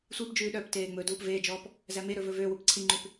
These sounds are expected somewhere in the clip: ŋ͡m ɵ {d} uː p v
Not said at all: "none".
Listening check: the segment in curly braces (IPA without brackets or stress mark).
d